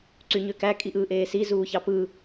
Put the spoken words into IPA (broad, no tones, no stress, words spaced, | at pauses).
ǀyɲøkæ kʼiʔɯːʔeːsi zuːçɑpɯ